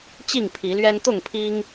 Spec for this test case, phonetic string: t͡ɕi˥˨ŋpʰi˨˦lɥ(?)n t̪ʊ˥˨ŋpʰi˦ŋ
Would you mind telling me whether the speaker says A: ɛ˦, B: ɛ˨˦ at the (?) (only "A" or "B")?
A